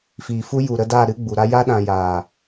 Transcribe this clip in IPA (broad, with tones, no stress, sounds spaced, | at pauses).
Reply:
f iː˨ f u˦ j u˨ ɾ ə˧ d a˦˨ ɾ ɨ˦ ɡ͡b u˨ ɾ a˦ j a˦ ɗ ã˧ j aː˨